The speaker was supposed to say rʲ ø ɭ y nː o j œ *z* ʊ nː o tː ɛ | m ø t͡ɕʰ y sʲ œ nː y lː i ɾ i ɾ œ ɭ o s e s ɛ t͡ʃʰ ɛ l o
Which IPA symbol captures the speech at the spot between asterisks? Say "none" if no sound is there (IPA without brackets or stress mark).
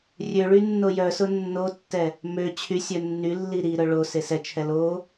s